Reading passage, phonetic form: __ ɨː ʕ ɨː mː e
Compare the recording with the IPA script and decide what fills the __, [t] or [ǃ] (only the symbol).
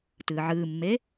t